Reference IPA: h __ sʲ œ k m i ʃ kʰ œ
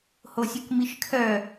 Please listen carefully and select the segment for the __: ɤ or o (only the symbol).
o